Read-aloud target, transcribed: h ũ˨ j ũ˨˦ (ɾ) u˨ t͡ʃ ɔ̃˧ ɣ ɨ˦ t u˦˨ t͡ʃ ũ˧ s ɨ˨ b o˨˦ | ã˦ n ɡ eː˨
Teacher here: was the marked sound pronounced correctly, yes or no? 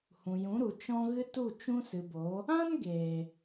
yes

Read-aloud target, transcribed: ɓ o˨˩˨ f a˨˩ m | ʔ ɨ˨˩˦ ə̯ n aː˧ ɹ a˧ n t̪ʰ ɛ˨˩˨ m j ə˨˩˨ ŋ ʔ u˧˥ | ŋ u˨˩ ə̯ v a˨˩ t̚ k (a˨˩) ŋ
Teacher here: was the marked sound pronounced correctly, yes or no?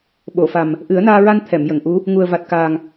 no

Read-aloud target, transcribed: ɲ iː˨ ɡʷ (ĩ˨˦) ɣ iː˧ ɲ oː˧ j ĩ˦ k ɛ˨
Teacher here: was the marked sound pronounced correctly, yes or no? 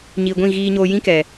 no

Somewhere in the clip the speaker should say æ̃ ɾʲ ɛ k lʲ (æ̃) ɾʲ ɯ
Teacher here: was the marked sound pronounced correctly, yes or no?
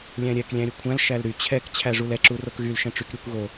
yes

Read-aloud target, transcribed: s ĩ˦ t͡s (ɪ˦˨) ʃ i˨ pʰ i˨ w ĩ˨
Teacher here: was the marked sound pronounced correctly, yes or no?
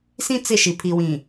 yes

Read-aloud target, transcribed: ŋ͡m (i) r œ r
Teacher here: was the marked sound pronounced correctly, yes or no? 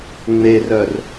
no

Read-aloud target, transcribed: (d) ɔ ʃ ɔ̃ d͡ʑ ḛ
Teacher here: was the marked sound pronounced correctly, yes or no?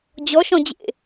no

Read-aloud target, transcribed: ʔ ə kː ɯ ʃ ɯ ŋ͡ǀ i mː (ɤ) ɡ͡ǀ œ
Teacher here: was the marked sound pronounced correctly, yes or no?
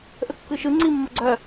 yes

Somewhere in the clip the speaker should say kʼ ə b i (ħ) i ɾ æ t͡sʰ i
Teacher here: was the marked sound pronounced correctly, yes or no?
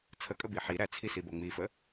yes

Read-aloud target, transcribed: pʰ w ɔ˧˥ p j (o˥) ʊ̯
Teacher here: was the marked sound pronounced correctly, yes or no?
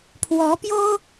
yes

